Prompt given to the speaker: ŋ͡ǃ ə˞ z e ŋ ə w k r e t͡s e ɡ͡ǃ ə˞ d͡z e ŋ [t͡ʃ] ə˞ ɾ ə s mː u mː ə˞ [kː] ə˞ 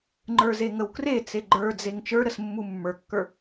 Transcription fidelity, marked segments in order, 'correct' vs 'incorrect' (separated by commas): correct, correct